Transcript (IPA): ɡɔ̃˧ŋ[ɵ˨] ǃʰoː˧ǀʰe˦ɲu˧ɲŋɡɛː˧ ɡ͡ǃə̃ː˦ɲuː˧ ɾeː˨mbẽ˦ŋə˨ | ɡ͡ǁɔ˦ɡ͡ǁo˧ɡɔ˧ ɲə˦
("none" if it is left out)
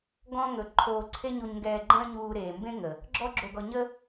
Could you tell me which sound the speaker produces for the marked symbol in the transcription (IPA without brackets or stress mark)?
ɵ˨